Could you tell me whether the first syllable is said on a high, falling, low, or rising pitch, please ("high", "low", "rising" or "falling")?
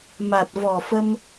low